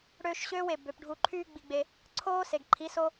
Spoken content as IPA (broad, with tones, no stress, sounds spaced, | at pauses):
ɽ øː˧ ʃ ɕ øː˦ w e˨ b ø˨ p ɖʱ u˧ ǃʰ yː˦ ɡ͡b i˧ ɡ͡b e˧ | ǀʰ oː˦ s e˨ ɡ ǃʰ i˨˦ s o˦